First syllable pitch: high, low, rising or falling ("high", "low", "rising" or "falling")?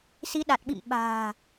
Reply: rising